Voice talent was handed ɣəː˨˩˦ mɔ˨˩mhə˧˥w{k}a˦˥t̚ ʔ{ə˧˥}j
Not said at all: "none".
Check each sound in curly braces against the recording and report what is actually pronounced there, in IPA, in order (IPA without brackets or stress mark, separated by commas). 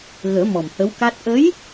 k, ə˧˥